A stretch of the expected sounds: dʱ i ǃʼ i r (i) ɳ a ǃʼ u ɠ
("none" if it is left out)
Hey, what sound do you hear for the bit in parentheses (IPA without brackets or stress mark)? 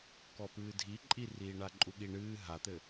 iː